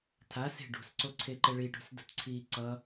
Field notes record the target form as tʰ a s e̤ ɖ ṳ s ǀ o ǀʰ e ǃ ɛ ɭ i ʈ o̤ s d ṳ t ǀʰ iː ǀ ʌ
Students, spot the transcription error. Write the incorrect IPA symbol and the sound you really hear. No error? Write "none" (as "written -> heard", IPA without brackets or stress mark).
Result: none